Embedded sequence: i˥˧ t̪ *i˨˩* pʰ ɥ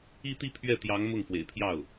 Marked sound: incorrect: i˥˧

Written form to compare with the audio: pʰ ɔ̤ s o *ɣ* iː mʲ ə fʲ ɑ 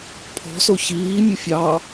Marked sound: incorrect: ç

